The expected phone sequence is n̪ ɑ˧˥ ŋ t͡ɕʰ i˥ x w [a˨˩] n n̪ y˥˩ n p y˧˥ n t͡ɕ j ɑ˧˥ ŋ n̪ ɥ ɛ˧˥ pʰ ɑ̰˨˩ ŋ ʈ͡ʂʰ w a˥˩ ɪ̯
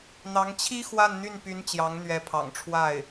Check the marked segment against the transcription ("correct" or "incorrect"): incorrect